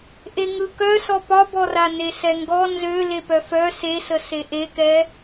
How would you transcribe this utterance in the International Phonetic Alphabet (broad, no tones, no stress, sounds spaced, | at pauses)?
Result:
ʔ e ŋ ɯ k œ s ɔ p ɒ b ɔ r a n e s ɛ ŋ ɡ ɔ n z ø l e p œ f œ s e s ə s e ʔ e k ɛ